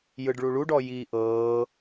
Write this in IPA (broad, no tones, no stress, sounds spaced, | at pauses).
j ɯ ɖ ɭ u ɭ u ɖ ɔ j iː ʔ ɤː